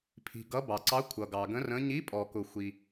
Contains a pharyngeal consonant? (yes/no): no